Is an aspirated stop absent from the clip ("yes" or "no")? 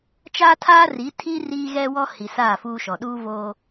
no